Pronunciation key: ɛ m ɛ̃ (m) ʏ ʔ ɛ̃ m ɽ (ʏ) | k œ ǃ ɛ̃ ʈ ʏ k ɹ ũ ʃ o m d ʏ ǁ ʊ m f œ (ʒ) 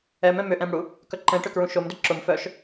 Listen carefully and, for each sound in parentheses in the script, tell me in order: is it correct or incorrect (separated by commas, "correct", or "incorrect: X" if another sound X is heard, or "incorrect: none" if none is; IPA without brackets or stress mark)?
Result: correct, incorrect: u, incorrect: ʃ